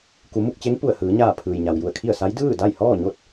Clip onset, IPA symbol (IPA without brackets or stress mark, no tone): k